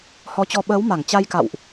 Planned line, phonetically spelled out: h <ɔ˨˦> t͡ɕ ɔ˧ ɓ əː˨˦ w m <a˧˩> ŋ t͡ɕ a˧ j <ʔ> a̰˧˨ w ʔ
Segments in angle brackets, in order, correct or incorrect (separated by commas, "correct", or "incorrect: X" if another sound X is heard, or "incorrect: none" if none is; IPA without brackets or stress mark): correct, correct, incorrect: k